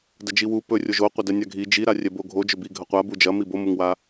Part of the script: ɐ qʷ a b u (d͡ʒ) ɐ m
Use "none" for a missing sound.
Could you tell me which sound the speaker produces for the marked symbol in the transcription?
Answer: d͡ʒ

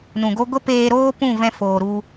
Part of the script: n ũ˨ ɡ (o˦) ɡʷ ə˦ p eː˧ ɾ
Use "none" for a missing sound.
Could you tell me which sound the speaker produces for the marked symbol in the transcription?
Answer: o˦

